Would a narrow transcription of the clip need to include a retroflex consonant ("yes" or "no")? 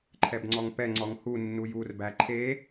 no